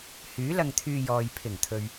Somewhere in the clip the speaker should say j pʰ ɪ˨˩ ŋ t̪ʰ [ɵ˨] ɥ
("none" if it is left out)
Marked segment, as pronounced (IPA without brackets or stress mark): ɵ˨